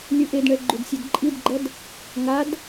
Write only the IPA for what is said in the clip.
lʲ ɯ ʔ e d ɳ ɛ ɡ͡ǃ u d sʲ ɛ d ǃʼ i d ɡ͡ǃ ʌ d | ŋ a d

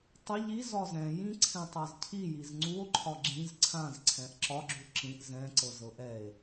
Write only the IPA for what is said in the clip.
tˤ ə ʎ i z ɒ z ɛ̃ j ĩ ǀʰ ɛ̃ tˤ a z cʰ i j i z ŋ͡ǀ u o̯ ǃʰ ɒ ɡ͡ǁ ĩ z ǀʰ ã z ǀʰ ɛ̃ ʔ ǁ ɒ ɡ͡ǁ u ǁ ĩ ʔ z ɛ̃ ǀ ɤ z ɤ ʔ ɛ e̯

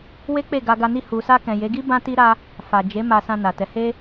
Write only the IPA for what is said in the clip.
w e˦ k͡p e˦˨ ɡ a˧ ɡ a˧ n i˧ h u˨ s a˧ k ɛ̃˨ j e˨˦ ɡ i˦ b ã˦ t i˦ ɾ a˦ | f a˨ d͡ʒ e˨˦ m a˧ s ã˧ n a˨ t ɛ˨˦ h e˦

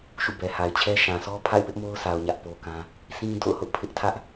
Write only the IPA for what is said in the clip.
ʃ ṵ˦˨ b ɛ˨ h a˨ ɪ̯ t͡ɕʰ ɛ˦ ʃ ã˨ sʰ ɔ˦ pʰ a̰˦˨ ɪ̯ p ɪ˦ ʔ m o˦ ʊ̯ s a˨ ʊ̯ ɲ ä˦ ʔ p o˦ k ã˦ | s ĩ˦ d o̰˦˨ ʊ̯ h ʊ˦ ʔ pʰ ɪ˦ ʔ tʰ ä˦ ʔ

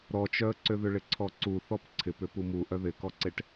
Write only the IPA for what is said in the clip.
ɾ ɔ t͡ʃ œ ə̯ ǀ ʏ ð ʏ ɭ ɪ ǀʰ ɔ ǀ u θ ɔ p ǀʰ ɪ p ʏ p u m u ʔ œ ð ɪ k ɔ ǀ e ʈ

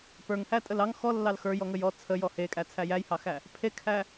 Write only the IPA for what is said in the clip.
p ə˞ ŋ h æ tʼ ə l ɑ ŋ x ɔ lː ɑ l x ə˞ j ɔ ŋ ə j ɔ t͡sʰ ə j ɔ h e kʼ æ t͡sʰ æ j æ j h ɑ x æ | pʰ e kʰ æ

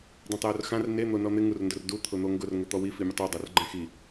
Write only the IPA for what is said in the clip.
dˤ ɛ̃ tˤ j o r x ã r n e n̪ o n ɔ n̪ ɪ ŋ u r n d ʊ r d u t̪ʰ ʊ n̪ o ŋ ɡ ʊ r ŋ ʊ t̪ ɔ w i f i mʲ ʊ tˤ u dˤ o r ɡ͡ǃ ɛ̃ x i

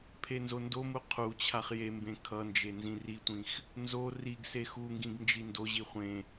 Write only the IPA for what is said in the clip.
pʰ e n z o n d o m u qʰ u t͡ɕʰ a χ j e m b ẽ kʰ ʌ n d͡ʒ e n z ĩ r i tʷ ĩ x | n z o r i ɡ s e x u ŋ ɡ ĩ ɡ n d͡ʒ i n d o ʑ i χʷ ẽ

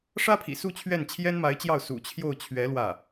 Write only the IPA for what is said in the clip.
ʂ ä˥ pʰ ḭ˨˩ s u˥˧ t͡ɕʰ ɥ ɛ˥˩ n t͡ɕʰ j ɛ˥ n m a˧˥ ɪ̯ t͡ɕ j ɑ˥˩ ʊ̯ s ṵ˨˩ t͡ɕʰ j o˥˩ ʊ̯ t͡ɕʰ ɥ ɛ˧˥ l w ä˥˩

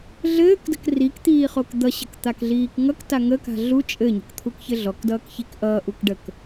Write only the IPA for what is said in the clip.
ɮ ɘː k d ə̤ k r i k t̪ iː χ o k d̪ ʌ ɕ ə̤ k t̪ a k ɮ iː k ŋ ʌ k t a ŋ ə k a̤ ɮ u t͡ʃʼ ɘ ɲ ə̤ k t̪ʰ u k ç ɘ ɮ ɔ k d ʌː k ç i k ʔ ʌː ʔ u k ɖ ə k

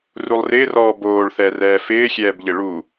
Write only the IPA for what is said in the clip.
r u lˠ r ɪː r ɔː b oː ɭ θ ɛ r ɛː f ɪː xʲ ɛː b ʎ ɪ ɭ u

